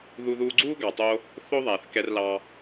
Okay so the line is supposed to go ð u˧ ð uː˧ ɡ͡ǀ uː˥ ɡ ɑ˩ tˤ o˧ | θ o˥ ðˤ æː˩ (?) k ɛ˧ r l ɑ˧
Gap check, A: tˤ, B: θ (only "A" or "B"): B